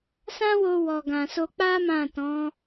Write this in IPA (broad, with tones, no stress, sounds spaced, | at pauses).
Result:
s ã˦ w o˧ w ɔ˨ ɡ ã˨ s o˧ k͡p a˦ m ã˦˨ t ɔ̃˨˦